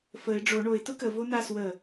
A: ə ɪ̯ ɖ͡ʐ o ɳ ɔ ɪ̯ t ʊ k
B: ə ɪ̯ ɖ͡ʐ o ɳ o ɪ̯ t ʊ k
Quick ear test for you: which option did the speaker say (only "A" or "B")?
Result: B